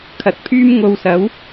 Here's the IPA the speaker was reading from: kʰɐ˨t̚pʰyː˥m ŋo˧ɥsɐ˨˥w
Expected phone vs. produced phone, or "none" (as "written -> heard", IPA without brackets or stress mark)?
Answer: ɥ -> w